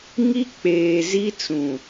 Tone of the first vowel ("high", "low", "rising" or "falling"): high